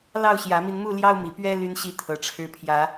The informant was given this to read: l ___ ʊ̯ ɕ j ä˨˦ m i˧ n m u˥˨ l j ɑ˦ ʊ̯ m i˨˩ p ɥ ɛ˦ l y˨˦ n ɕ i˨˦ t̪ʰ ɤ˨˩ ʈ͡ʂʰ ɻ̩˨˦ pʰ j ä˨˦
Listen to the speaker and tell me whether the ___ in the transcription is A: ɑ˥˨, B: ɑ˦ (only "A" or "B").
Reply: A